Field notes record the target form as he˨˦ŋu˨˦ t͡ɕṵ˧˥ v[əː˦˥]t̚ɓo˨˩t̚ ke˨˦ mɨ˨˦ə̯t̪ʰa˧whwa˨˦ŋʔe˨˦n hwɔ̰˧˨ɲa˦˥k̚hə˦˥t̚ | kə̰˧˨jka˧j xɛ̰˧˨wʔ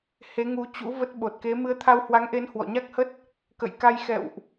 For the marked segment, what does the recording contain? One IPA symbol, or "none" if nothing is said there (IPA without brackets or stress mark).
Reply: ə˦˥